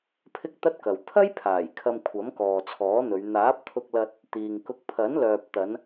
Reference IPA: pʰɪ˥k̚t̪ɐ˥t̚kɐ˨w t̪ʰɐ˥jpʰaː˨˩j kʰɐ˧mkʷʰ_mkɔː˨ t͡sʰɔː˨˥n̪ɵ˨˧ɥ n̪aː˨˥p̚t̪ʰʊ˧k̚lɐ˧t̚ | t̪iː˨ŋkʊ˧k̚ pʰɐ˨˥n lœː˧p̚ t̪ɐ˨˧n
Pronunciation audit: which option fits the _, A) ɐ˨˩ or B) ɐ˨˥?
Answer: B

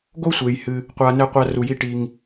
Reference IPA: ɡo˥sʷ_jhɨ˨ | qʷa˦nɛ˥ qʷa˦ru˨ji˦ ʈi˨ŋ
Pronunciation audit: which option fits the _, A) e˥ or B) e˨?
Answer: B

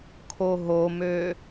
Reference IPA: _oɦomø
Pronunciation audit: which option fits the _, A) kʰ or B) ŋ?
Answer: A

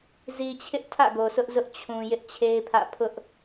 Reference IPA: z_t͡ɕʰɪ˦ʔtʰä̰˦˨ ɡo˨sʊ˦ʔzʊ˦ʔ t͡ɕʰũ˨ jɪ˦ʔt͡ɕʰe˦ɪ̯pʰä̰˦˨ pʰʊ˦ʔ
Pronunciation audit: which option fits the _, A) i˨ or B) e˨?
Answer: A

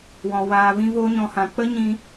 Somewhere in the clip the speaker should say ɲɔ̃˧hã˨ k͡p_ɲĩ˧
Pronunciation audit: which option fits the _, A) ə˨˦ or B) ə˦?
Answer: B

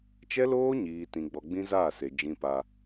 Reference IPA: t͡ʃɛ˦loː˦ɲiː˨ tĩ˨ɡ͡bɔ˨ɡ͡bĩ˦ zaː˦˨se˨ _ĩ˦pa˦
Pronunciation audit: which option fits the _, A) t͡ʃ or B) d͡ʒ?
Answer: B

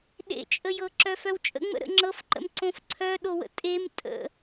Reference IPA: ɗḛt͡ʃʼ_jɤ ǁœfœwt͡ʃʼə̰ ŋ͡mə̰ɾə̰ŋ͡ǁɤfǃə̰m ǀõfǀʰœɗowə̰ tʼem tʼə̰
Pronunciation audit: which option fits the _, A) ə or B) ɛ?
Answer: A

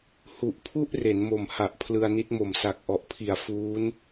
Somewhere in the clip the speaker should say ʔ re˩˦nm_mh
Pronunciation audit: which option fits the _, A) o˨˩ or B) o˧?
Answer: A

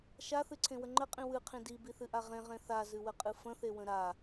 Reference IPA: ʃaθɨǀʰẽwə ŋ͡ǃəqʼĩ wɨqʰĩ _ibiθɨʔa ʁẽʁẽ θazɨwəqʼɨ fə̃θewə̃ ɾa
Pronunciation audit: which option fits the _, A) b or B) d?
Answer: B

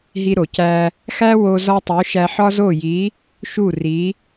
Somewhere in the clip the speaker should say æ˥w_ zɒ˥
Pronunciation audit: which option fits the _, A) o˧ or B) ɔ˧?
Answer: A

